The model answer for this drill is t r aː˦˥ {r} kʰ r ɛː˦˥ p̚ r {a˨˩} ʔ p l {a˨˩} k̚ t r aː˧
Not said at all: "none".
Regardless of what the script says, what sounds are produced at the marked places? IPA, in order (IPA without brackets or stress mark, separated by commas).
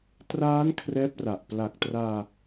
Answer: n, a˨˩, a˨˩